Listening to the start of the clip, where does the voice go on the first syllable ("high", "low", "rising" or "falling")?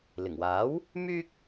low